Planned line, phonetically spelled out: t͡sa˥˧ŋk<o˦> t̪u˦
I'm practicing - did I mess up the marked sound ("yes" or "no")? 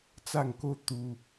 no